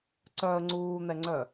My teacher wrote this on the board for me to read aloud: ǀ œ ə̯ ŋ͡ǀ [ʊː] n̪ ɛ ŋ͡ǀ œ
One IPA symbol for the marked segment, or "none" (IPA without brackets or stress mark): uː